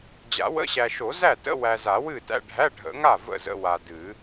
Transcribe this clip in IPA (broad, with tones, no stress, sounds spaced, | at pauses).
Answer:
d͡ʑ a̰˨˩˦ w ə̰˧˥˧ ɕ æ˨ ʃ o˨˩˦ z æ˥˩ t ə̰˧˥˧ w æ˨ z a˨˩˦ w ɨ˥˩ t æ̰˧˥˧ ɖʱ æ˧˥˧ ɖʱ ə̰˨˩˦ ŋ a˥˩ v ə̰˥˩ z ə̰˧˥˧ w a˨ d ɨ˨˩˦